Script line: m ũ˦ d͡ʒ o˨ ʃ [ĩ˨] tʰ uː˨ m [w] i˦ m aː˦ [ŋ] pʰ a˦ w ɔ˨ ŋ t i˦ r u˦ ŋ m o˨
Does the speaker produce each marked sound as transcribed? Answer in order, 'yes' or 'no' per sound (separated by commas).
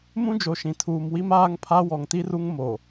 yes, yes, yes